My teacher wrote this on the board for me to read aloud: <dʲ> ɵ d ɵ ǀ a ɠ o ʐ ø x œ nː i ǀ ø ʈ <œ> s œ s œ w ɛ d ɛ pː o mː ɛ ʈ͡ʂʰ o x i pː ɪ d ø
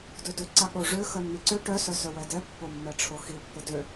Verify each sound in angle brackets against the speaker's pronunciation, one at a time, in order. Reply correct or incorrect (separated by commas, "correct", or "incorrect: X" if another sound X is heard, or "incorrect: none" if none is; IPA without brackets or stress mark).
incorrect: d, correct